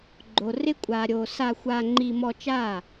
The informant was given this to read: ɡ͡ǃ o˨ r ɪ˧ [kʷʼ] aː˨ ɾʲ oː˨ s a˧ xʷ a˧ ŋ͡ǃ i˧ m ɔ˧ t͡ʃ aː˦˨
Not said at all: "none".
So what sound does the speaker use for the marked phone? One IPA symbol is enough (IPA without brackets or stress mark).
kʷʼ